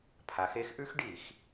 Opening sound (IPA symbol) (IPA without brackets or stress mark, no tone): pʰ